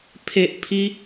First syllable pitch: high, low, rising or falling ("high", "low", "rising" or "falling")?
high